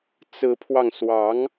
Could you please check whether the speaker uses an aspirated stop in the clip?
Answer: yes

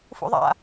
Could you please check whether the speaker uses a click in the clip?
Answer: no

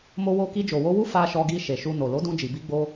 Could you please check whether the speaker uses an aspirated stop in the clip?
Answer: no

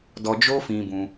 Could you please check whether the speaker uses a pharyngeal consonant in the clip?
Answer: no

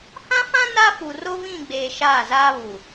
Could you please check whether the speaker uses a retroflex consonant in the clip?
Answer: no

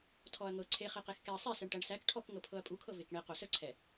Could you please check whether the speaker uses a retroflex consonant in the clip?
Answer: yes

